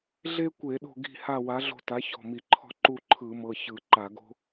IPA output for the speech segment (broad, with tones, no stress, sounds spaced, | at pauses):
ɮ e˥ kʷ e˧˩˧ ɗ o̤˦˨ ɡ i̤˦˨ h a˦˨ w a˩˥ ɮ o̤˦˨ t a˩˥ ç ɔ̤˩˧˩ m i˧˩˧ ǃʰ ɔ̤˦˨ ǃ u˦˨ ǃʰ ɯ˧˩˧ m ɤ˩˧˩ ç ɯ˧˩˧ ǃ a˧˩˧ ɡ o̤˥